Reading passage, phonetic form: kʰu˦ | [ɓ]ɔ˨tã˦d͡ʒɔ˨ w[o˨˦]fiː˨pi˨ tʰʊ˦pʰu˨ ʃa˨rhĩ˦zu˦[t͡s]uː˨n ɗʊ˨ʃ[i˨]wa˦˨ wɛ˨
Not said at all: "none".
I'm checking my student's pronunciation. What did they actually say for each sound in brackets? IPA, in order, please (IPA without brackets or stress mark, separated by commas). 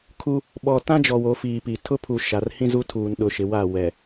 ɓ, o˨˦, tʰ, ɪ˨